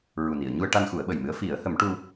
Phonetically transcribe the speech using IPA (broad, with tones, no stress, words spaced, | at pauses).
ɹu˨˩ni˨˩˨ə̯ɲu˧ə̯ʈa˧n xu˨˩˦ə̯ɓə˨˩jmɨ˧˥ə̯ fi˨˩˦ə̯hə˨˩˦mʈu˧